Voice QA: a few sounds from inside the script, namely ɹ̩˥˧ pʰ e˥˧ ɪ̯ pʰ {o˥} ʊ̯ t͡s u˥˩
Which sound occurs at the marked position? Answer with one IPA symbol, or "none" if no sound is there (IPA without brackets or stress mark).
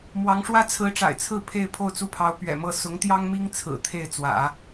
o˥˧